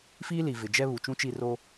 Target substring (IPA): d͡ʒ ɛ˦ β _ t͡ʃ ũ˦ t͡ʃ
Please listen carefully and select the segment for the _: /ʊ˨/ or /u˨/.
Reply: u˨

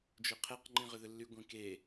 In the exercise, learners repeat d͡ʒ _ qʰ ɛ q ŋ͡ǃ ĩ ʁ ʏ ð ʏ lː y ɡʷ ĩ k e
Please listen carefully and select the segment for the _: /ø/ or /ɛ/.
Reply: ø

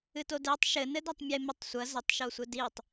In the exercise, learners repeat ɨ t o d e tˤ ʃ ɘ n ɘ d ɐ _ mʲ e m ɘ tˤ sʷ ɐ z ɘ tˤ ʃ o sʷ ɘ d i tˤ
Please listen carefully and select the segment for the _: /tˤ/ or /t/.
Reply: tˤ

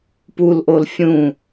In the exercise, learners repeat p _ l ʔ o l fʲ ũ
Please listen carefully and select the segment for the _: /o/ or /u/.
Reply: u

